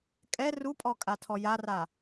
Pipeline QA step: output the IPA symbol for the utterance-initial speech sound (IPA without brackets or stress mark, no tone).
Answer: kʼ